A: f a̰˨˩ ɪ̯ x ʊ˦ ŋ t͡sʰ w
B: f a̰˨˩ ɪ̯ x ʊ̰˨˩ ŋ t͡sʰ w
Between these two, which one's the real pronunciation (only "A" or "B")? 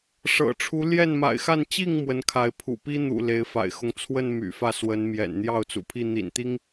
A